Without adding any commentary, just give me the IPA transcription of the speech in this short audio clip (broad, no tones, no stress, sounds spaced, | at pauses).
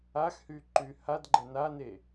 a x h y ǃ y h a d ɡ͡ǃ ɛ n a n e